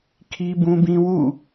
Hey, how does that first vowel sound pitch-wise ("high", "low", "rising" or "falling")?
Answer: high